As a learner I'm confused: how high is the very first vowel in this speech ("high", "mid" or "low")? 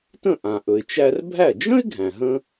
mid